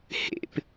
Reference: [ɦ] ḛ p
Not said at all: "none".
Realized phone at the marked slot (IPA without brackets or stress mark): h